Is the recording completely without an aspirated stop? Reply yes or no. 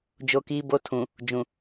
no